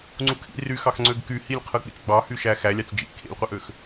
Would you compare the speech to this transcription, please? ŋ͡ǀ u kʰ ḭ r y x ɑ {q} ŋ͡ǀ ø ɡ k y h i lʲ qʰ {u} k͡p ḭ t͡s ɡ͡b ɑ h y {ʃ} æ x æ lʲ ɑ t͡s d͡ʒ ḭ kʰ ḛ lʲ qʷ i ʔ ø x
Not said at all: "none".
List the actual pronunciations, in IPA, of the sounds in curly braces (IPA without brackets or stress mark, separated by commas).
x, ɯ, ʃ